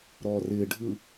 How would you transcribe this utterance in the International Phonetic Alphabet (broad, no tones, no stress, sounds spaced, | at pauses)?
ɾ ɔː r ɪː ɖʱ ɯ